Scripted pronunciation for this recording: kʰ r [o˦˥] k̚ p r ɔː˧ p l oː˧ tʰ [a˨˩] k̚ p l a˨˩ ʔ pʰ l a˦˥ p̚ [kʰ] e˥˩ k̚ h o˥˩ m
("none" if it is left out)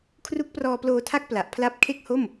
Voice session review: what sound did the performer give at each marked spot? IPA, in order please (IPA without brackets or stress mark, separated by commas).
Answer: u˦˥, a˦˥, kʰ